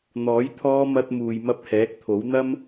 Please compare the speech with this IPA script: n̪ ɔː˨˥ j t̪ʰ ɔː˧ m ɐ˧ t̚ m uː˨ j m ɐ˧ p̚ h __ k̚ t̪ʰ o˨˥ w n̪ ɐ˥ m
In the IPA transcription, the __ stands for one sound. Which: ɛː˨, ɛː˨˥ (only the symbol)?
ɛː˨˥